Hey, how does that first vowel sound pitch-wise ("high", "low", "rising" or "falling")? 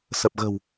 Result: low